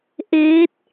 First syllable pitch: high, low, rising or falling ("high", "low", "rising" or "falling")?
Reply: rising